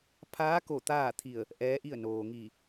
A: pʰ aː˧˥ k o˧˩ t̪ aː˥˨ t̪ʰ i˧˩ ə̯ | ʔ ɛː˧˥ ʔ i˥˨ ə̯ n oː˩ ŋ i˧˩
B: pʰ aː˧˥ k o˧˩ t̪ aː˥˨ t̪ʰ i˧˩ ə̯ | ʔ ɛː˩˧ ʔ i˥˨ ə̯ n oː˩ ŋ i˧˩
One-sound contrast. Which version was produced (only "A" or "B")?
A